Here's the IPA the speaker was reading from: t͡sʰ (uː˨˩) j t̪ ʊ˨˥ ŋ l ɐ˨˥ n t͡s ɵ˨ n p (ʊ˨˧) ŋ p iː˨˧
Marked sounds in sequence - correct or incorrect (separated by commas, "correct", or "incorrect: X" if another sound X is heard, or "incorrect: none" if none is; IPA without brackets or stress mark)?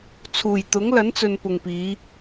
correct, incorrect: ʊ˨